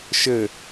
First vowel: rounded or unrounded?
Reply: unrounded